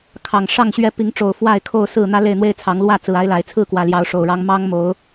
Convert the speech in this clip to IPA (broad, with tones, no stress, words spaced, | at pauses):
kʰɑ˨˩ŋ ʂɑ˥˨ŋɕɥɛ˥˨ pi˨˦ŋʈ͡ʂo˨˩ʊ̯ fwa˥˨ɪ̯kʰo˥˨ʊ̯ sɹ̩˥˨n̪ä˦ le˥˨ɪ̯n̪we˦ɪ̯t͡sʰɑ˨˦ŋ lwä˥˨ t͡sɹ̩˨˩a˦ɪ̯la˨˩ɪ̯ t͡sʰɹ̩˥˨kwä˨˩ljɑ˨˦ʊ̯ ʂo˨˩ʊ̯ɻɑ˦ŋ mɑ˦ŋmo˨˦ʊ̯